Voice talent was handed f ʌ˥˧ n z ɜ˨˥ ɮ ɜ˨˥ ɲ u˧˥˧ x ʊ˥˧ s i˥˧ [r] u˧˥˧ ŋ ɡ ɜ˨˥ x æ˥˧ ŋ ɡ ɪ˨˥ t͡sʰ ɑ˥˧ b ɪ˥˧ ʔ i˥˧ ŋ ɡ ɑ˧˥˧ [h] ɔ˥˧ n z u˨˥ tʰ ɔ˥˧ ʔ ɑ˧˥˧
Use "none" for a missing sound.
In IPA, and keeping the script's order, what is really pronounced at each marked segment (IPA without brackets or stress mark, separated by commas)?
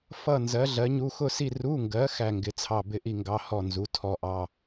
r, h